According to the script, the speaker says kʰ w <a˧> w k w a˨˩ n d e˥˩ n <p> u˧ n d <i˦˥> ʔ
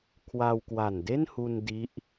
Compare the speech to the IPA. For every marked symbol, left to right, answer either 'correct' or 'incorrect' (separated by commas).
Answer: correct, incorrect, correct